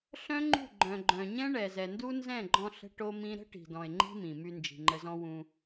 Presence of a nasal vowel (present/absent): present